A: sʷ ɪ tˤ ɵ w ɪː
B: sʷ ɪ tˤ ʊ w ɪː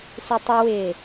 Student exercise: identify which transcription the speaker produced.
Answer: B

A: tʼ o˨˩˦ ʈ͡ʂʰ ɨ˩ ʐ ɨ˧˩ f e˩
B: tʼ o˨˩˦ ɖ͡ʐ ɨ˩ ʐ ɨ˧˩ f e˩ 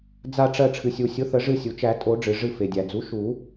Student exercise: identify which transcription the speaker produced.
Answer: B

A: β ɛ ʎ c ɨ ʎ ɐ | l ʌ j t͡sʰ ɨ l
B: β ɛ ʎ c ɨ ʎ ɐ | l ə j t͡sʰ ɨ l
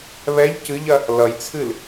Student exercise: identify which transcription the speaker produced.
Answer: A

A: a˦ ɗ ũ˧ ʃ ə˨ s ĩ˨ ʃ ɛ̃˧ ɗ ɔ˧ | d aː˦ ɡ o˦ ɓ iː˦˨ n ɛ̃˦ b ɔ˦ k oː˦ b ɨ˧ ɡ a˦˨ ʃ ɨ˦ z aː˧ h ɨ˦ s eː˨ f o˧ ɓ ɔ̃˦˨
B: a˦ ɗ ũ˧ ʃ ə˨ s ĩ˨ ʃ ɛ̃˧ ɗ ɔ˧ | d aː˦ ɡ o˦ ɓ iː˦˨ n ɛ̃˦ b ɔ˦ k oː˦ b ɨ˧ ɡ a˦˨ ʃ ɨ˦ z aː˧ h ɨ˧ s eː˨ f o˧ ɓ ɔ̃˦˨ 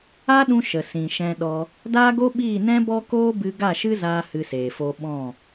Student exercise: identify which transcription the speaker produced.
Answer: B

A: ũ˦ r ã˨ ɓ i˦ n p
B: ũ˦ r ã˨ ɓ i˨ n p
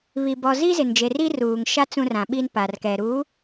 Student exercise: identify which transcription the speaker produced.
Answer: A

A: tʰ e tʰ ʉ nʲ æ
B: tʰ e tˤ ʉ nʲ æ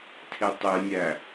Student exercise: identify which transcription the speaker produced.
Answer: B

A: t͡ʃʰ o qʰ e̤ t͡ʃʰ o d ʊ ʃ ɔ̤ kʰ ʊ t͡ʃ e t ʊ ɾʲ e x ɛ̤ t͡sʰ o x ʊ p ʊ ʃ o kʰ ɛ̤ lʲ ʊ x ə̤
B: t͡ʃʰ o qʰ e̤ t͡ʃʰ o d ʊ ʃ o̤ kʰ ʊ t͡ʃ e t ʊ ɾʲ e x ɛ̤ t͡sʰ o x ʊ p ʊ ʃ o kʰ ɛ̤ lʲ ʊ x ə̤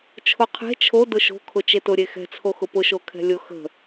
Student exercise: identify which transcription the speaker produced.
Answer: B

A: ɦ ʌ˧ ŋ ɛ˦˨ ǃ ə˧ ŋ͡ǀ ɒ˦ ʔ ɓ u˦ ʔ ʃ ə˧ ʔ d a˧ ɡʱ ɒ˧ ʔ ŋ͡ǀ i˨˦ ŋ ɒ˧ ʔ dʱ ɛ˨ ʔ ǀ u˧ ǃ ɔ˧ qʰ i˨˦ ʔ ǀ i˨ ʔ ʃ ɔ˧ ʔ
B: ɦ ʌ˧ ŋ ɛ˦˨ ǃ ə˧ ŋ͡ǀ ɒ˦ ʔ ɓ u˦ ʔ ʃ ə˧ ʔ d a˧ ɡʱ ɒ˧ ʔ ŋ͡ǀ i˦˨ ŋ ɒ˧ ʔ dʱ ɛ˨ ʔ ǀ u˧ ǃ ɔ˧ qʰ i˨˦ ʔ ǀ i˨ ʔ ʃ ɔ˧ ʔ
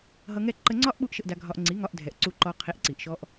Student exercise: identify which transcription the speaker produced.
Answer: A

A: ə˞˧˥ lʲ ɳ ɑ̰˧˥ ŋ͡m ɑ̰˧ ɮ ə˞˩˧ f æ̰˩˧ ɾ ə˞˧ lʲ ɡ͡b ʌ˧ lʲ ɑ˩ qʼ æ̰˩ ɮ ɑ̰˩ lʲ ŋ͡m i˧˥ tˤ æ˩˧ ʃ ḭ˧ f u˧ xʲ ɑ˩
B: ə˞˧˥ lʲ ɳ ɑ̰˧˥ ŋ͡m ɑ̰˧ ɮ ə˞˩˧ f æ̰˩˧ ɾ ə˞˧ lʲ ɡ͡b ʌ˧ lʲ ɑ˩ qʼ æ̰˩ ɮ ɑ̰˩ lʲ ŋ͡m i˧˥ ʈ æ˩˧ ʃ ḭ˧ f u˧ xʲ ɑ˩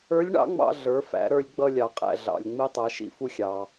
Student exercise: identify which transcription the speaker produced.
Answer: A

